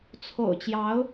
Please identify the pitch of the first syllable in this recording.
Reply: low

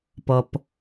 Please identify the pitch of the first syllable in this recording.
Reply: low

